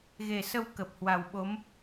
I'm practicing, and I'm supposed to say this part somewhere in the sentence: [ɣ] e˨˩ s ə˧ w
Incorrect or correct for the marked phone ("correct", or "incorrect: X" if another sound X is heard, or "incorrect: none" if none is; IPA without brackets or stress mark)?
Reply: correct